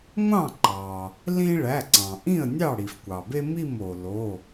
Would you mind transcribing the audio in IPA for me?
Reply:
ŋʷ ɑ̃˥˩ ǃ ɑ˩ | l ĩ˦ ɭ æ˩˧˩ ǀ ɑ̃˩ ʔ ĩ˥˩ ə̯ nʲ ɑ˥˩ ɽ i˩ f kʷ ɑ˩ b e˦ m i˥˩ m o˩ l o˩˧˩

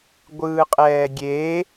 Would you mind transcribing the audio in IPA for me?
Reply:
ɡʷ ɯː qʼ ɛː ɡʲ e

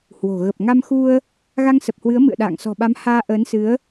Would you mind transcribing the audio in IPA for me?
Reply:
h w o̤˨˩ ɣ ə˨˩ p̚ ŋ a˧ m x u˧ ə̯ | ɣ a˧ ŋ s ə˨˩ p̚ h w ɨ˨˦ ə̯ m ɨ̰˧˨ ə̯ ɗ a̰ː˧˨ ŋ s ɔ̤˨˩ ɓ a˨˦ m h aː˧ ʔ əː˨˦ n s ɨ˨˦ ə̯

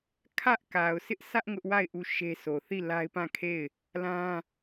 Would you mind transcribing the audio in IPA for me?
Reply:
kʰ ä˦ ʔ k a˨ ʊ̯ sʰ ɪ˦ ʔ sʰ ä˦ ʔ ŋ ʊ˦ ʔ w a˦˨ ɪ̯ ʔ u˦˨ ʃ e˦ sʰ o˨ θ i˦˨ l a˦ ɪ̯ p ã˦˨ kʰ e˦˨ ɪ̯ | l ã˦

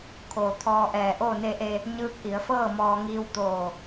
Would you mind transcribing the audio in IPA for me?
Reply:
kʰ oː˩ t̪ʰ ɔː˧ ʔ ɛː˧˩ ʔ oː˥˨ n e˧ ʔ e˧ | ɲ ɯː˧˥ k̚ ʔ i˩˧ ə̯ f ɤː˥˨ m ɔː˧ ŋ iː˧ w t̪ oː˧˩

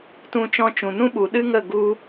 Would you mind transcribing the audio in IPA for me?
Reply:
t ũ˧ t͡ʃ ɔ̃˧ t͡ʃ ũ˨ n ũ˦ ɓ u˨ ɗ ɨ˦ ŋ ə˦˨ ɡ u˧

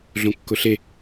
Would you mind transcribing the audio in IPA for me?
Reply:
ɮ õ kː ʊ ɬ e

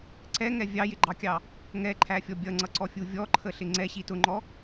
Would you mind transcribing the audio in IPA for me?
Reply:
ǀ ɛ ŋ ɛ vʲ ɑ j ɪ ɡ͡ǃ ɑ kʲ ɑ | ŋ ɛ ǃʰ æ fʲ ɔ bʲ ʌ ŋ͡ǀ ʌ ǀ ɔ fʲ u vʲ ɔ ǃʰ ə ɬ ɪ ŋ͡ǀ ɛ ɕ i t ʊ ŋ͡ǃ ɔ

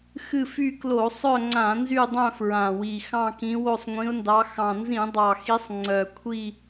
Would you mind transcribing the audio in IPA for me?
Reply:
x ɨ˦˨ f y˦˨ k l o˧˩˧ sˤ œ˦˨ ŋ͡ǀ ã˧˩˧ n z y˦˨ dˤ œ̃˦˨ f ɹ ã˨˩ w i˨˩ x ɑ̃˦˨ k ĩ˨˦ w o˦˨ sˤ ŋʷ ĩ˨˦ ʊ̯ n d ɑ˨˦ x ɑ̃˨˩ n z ĩ˧˩˧ dˤ ɑ˨˩ x i˨˦ sˤ ŋ͡ǀ œ˨˩ kʷʰ i˦˨

